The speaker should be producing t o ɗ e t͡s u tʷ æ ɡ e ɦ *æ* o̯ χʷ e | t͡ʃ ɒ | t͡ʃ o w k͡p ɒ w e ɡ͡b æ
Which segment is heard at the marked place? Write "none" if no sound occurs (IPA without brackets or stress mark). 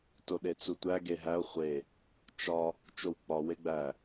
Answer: æ